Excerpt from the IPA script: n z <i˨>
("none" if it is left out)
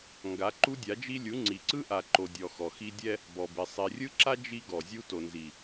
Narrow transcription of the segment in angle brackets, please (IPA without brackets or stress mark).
i˨